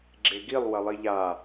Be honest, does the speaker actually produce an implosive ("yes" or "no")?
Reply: no